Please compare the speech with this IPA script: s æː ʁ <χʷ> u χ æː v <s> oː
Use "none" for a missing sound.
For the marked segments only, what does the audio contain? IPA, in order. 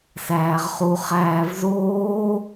χ, z

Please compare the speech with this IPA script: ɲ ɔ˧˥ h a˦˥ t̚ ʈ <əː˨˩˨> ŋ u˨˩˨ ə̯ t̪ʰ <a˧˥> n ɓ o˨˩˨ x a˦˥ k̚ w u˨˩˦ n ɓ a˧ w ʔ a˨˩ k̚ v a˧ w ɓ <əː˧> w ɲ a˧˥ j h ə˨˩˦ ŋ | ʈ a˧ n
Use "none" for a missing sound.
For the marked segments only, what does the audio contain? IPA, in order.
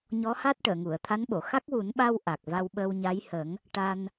əː˨˩˨, a˧˥, əː˧

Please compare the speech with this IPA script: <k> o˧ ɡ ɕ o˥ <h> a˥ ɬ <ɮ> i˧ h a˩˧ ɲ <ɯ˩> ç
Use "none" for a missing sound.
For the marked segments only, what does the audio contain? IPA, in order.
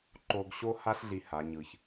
ǃ, h, ɮ, ɯ˩

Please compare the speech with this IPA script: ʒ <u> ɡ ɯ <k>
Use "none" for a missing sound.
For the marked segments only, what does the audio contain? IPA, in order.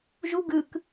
u, k

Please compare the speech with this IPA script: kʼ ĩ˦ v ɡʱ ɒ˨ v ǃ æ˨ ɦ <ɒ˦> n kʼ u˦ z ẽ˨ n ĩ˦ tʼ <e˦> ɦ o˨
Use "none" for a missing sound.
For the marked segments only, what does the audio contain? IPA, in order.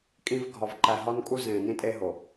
ɒ˦, e˦

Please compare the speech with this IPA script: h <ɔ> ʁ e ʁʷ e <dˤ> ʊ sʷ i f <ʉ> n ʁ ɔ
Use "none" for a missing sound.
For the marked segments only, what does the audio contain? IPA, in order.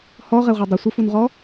ɔ, dˤ, u

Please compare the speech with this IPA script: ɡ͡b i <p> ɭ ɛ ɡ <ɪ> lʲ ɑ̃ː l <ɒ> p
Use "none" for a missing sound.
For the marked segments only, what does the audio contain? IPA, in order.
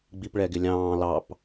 p, ɪ, ɑ

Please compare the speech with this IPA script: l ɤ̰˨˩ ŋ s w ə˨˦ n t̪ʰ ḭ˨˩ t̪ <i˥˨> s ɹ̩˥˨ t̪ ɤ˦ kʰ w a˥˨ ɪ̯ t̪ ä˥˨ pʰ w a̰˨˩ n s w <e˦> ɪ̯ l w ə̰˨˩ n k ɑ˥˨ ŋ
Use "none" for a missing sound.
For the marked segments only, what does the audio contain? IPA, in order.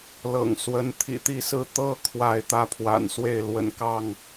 i˥˨, e˥˨

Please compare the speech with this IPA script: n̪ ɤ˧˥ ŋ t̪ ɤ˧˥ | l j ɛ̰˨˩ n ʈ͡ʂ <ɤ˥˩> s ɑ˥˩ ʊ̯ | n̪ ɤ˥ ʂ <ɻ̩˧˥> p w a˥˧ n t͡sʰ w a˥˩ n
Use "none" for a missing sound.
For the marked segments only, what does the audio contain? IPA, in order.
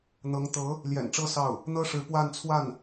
ɤ˥, ɻ̩˧˥

